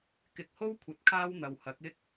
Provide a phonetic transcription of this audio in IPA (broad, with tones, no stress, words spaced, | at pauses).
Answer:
kɪ˨k̚ho˥w kʷʰɐ˨˥t̚kʰaː˥w n̪ɐ˨whɐ˨˥k̚ɪ˥k̚